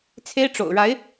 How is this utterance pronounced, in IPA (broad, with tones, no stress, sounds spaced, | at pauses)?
t͡sʰ e˥ ɪ̯ ʈ͡ʂ o̰˨˩ ʊ̯ ɻ a˧˥ ɪ̯